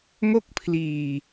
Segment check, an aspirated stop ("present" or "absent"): present